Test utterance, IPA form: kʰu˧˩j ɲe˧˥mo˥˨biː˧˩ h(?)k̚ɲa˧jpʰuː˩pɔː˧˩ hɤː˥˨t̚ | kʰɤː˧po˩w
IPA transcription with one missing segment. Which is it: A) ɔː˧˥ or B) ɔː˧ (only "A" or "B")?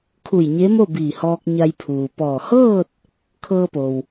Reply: B